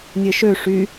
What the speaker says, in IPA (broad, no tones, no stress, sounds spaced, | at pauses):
nʲ e ʃ ø ʂ y